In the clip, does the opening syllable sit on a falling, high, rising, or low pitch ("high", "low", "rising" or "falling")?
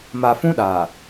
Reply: low